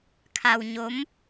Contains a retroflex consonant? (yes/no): no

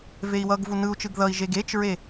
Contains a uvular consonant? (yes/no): no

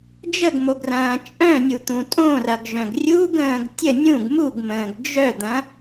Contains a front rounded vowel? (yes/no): yes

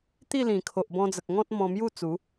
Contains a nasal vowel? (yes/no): yes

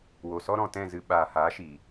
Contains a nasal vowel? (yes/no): yes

